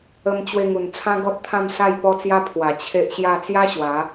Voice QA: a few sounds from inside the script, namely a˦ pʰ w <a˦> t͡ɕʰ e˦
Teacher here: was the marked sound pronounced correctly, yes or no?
no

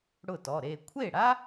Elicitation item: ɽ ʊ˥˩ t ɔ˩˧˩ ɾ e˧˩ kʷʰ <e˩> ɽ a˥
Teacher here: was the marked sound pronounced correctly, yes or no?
no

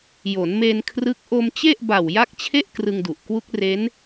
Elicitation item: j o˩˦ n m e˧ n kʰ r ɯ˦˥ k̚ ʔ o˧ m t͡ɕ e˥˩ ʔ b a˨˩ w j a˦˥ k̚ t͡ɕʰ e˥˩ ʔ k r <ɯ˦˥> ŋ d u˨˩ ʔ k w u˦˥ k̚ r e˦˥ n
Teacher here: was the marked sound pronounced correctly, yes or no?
no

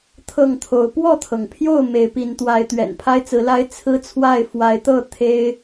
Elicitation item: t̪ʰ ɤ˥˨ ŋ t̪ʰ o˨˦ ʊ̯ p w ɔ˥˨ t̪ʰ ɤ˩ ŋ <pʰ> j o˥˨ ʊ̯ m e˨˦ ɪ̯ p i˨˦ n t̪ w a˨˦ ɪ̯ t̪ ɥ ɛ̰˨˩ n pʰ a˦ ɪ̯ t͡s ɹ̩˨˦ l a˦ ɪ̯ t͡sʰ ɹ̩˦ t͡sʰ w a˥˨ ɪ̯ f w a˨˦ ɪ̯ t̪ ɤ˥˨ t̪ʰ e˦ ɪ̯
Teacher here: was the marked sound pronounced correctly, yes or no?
yes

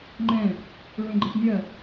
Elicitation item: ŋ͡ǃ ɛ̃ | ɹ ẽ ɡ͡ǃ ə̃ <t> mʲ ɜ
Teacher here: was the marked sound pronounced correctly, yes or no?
yes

